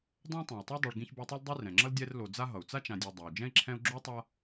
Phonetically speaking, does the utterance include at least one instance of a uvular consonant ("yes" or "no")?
no